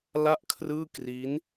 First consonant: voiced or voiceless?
voiced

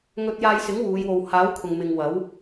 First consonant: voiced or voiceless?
voiced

